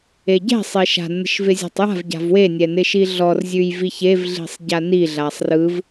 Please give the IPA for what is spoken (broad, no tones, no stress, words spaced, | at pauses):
eɟɛ̤ sˤeʃa̤ nːə̤ʃvɪzʲɛ̤tˤja̤v ɟa̤vwe nʲɛnɪʃiɮɔr zʲʉjviçev ɮi̤sˤɟani ɮasˤrɯv